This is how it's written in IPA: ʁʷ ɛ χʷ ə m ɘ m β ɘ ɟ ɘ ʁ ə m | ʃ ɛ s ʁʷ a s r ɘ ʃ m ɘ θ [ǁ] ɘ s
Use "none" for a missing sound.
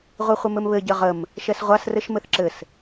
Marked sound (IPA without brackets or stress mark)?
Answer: ǁ